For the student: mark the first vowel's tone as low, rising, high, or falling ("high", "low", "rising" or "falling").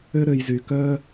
high